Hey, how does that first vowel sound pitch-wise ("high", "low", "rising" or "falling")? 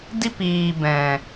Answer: high